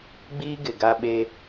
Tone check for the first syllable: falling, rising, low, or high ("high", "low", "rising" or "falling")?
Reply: high